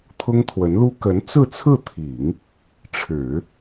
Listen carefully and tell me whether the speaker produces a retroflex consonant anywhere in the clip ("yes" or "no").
yes